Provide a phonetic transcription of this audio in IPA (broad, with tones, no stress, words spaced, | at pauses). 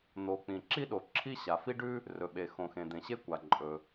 n̪o˩ k͡pĩ˩ǁi˥ɗo˩ ǁʰi˥ ɕa˩fi˥ɖʉ˥ | rɵ˩ɓe˩xõ˩ xẽ˩d̪ẽ˩ɕe˥kʷa˩ ǃʼɵ˩